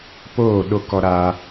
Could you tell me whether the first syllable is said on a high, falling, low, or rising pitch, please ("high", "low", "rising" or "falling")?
falling